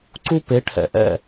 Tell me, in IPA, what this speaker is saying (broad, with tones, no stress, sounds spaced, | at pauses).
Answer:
ǀ u˥ p e˩˥ ʈʰ ɛ̰˩ ʔ ɛ̰˥˩